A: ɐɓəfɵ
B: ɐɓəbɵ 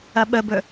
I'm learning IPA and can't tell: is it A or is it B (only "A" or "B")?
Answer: B